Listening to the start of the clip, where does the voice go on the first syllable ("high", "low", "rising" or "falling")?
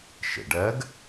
low